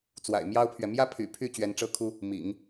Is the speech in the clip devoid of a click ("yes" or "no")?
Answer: yes